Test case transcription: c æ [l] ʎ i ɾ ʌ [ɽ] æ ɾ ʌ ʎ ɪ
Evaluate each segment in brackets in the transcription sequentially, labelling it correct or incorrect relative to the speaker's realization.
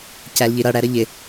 correct, correct

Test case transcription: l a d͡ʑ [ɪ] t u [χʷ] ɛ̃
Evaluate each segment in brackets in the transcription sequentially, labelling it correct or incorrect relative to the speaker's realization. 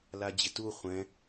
correct, correct

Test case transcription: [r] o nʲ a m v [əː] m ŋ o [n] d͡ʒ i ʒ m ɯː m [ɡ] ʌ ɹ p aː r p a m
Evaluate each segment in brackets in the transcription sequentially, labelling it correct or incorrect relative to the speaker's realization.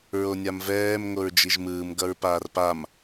incorrect, incorrect, incorrect, correct

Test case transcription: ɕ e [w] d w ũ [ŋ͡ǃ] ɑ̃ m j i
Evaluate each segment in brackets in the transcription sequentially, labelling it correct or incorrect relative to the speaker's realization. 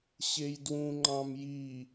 incorrect, correct

